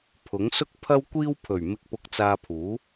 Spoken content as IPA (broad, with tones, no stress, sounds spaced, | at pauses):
pʰ ʊ˨˥ ŋ s ʊ˥ k̚ pʰ ɐ˥ w kʷ iː˥ w pʰ ɵ˨˩ ɥ m ɪ˧ k̚ p ʊ˧ k̚ t͡s aː˧ pʰ uː˨˥